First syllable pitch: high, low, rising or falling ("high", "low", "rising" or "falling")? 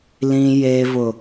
high